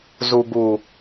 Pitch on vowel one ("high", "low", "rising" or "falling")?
low